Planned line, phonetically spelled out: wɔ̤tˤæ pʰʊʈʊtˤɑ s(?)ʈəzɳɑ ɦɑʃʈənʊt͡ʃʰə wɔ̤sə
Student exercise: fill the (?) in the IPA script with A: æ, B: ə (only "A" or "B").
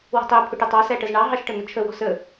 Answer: A